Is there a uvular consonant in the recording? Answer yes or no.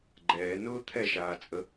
no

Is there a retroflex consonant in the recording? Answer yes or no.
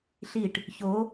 yes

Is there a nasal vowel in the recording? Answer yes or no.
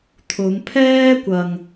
no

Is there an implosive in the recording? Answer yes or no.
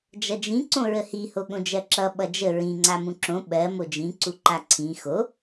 yes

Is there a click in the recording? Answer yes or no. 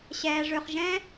no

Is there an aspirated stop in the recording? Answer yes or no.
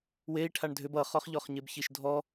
yes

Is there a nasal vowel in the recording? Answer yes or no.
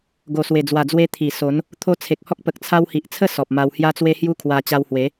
no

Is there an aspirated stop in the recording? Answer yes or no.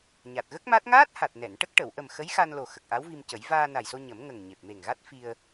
no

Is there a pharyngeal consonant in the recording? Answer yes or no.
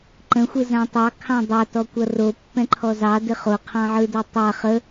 yes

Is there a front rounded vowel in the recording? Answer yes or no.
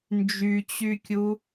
yes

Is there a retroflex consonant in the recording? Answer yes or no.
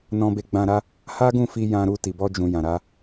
no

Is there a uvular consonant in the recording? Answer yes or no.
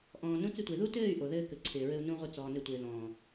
yes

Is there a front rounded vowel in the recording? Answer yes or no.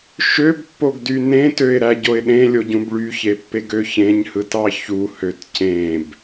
yes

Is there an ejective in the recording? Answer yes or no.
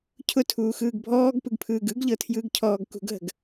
no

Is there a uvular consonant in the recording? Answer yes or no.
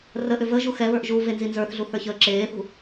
no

